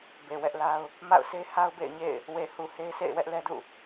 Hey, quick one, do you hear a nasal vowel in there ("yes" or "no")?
no